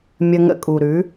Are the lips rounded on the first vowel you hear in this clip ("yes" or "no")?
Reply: no